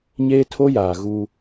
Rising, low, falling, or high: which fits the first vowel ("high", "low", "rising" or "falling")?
high